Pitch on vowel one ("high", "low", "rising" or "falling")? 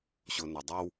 low